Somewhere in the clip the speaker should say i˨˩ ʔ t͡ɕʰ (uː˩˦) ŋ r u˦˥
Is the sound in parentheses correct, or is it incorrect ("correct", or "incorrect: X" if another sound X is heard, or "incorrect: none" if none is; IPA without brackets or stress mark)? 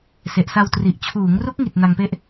correct